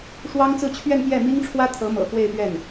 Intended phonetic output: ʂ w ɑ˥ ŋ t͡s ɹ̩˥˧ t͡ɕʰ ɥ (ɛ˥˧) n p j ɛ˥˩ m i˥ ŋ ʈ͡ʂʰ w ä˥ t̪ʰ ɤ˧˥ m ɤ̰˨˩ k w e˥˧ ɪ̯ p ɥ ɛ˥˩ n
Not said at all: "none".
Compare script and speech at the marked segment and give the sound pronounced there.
ɛ˥˧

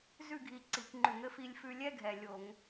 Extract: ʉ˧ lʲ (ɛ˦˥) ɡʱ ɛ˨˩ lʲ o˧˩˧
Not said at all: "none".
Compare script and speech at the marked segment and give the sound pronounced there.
ɛ˦˥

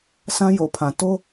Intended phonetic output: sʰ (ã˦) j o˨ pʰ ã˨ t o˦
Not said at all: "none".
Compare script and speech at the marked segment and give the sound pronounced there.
ã˦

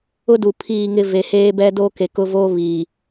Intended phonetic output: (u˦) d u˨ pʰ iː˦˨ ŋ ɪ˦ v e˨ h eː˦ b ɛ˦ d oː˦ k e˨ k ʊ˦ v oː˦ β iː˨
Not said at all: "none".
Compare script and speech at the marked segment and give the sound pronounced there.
ʊ˦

